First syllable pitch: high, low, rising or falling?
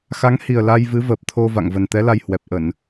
rising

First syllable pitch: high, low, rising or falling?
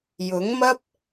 rising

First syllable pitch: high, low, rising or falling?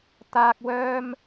high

